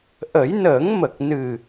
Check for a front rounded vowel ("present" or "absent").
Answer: absent